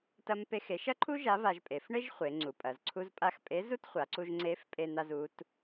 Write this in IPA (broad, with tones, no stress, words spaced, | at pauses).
tɐ˥mpe˥xe˧˥ʃ ɐ˥ǃʰu˥ ʒa˧˥va˧ʒpʼe˩˧f ɳe˥ʒχʷe˩˧ ŋ͡ǀu˩˧pʼɐ˩˧zǀʰu˥zpʼa˥x pʼe˧˥zu˥tχʷa˩˧ǀu˧ʒ ŋ͡ǀe˧˥f pʼe˧n̪a˧zu˩˧t